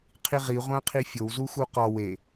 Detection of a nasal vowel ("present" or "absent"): present